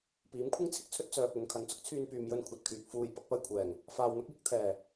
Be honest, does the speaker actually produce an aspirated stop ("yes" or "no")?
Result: yes